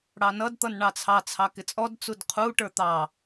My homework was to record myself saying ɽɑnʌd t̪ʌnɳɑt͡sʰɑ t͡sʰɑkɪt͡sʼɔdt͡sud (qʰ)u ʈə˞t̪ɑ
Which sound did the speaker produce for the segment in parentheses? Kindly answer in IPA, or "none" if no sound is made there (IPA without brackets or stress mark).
qʰ